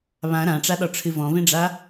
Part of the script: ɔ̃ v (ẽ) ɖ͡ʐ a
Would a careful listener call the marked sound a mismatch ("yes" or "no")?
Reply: no